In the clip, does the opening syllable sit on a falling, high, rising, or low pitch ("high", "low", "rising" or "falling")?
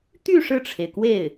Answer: falling